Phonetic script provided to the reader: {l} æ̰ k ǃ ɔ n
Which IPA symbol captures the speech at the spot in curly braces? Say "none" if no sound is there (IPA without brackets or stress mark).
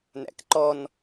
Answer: n